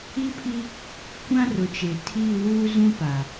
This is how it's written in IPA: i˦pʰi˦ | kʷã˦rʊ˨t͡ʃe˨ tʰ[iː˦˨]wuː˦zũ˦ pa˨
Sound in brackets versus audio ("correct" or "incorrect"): correct